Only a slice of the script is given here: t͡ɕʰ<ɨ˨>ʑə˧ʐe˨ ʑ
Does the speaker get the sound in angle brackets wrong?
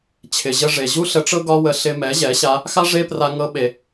yes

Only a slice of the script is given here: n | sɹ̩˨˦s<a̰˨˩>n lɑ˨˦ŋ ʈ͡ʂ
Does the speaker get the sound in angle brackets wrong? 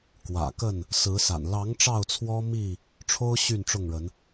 no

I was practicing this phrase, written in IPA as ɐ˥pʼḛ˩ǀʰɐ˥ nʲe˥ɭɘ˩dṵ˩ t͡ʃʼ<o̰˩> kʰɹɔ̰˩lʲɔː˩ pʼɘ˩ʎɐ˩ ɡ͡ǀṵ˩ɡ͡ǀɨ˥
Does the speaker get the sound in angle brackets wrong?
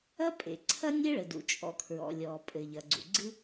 yes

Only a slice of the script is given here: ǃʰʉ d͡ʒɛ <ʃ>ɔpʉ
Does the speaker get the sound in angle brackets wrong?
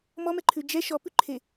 no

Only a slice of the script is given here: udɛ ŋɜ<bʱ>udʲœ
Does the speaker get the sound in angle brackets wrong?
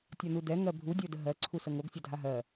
no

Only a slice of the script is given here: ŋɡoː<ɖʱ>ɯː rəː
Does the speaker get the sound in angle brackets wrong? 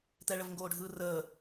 no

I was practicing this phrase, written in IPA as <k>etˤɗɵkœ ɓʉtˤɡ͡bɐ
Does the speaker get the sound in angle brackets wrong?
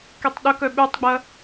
no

